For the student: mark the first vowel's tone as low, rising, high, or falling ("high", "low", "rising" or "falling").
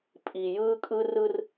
low